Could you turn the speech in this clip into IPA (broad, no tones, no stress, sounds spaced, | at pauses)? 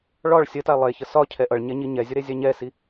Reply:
ɭ ɒ ɭ sʲ ə t a lˠ e ç ə s ɒ cʰ ɛ ʔ ʌ ɭ ɲ ɛ ɲ i ɲ ɛ zʲ ə ɾ e zʲ a ɲ ɛ s i